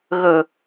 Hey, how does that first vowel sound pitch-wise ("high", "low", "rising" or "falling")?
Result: low